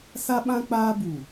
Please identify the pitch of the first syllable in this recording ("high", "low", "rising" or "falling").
high